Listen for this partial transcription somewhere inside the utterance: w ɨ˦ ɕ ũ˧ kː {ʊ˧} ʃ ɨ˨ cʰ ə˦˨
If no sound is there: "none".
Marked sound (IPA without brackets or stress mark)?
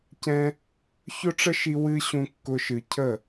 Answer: ʊ˧